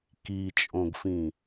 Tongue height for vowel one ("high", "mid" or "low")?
high